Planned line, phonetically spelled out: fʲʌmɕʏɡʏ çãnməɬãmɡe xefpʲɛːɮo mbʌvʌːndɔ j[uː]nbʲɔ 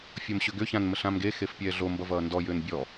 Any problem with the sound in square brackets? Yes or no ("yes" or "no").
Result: yes